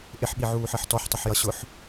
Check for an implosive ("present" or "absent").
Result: present